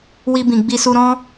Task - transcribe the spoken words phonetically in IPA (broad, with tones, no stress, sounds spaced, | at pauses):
w i˧ b ĩ˨ ɡ͡b i˧ s u˧ ɾ ɔ̃˦